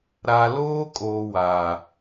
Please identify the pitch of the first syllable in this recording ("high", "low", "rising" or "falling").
low